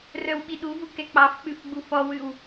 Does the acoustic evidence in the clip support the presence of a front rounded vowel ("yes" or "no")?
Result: yes